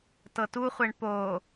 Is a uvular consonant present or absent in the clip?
present